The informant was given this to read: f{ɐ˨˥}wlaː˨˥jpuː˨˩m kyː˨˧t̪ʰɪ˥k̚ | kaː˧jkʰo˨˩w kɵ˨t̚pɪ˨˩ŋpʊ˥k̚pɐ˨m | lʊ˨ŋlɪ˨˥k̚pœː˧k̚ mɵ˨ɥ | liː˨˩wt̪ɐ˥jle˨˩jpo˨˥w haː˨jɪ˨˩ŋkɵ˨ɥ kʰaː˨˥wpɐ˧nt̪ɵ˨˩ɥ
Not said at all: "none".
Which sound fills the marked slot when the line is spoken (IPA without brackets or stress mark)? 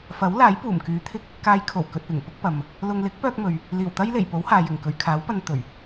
ɐ˨˥